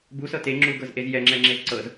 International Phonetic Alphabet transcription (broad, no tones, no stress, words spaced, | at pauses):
busɤ te ŋ͡ǁuɡɤzʔez jɛŋ͡ǁɛ ŋ͡ǁezǀɤz